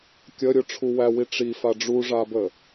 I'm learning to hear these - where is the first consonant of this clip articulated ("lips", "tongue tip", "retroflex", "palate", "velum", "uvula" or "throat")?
velum